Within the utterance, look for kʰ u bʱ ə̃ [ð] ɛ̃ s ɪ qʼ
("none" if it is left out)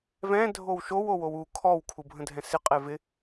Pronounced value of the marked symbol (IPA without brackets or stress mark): dʱ